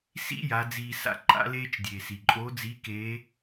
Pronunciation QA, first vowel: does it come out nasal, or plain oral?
oral